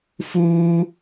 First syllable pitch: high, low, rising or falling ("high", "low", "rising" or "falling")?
high